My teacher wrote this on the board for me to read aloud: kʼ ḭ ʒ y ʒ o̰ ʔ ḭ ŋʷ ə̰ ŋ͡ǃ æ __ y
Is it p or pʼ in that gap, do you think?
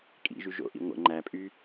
pʼ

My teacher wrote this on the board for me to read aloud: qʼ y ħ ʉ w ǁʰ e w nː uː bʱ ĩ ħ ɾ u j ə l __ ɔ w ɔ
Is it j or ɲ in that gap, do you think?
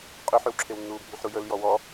j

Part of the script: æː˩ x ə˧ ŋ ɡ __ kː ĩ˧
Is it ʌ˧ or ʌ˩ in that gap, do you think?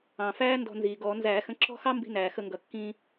ʌ˩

